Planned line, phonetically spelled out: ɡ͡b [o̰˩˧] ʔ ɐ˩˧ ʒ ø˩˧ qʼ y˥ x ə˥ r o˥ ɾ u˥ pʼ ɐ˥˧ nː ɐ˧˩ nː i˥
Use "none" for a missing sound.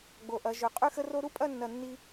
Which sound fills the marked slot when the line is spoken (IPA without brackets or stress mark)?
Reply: o˩˧